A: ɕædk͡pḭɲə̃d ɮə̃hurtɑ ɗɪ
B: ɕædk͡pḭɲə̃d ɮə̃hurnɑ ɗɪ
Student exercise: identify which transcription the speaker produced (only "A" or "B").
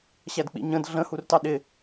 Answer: A